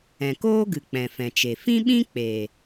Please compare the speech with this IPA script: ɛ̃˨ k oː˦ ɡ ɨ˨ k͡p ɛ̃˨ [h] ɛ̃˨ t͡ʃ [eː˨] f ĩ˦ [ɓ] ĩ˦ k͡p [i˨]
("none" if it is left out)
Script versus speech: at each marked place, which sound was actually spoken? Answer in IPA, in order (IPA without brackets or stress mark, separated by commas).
f, e˨, ɓ, e˨